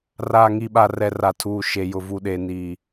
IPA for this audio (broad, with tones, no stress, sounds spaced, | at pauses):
r aː˨ ŋ i˨ ɓ a˨ r ɛ˨ r a˨ tʰ uː˨ ʃ e˨ j ʊ˨ v u˨ ɗ e˨ n i˨